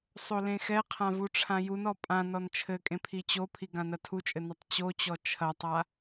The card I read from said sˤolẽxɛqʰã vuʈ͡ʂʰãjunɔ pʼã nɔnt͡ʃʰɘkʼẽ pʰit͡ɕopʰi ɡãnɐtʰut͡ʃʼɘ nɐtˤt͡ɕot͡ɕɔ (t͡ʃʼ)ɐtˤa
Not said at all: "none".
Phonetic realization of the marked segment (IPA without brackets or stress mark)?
t͡ʃʰ